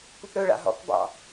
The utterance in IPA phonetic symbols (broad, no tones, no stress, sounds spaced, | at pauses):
p u p ɾ ɵ ɭ a̰ ɦ ɔ̰ k b ɑ̰